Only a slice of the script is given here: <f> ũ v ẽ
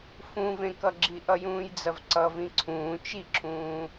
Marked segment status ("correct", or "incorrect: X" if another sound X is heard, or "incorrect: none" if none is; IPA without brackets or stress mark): correct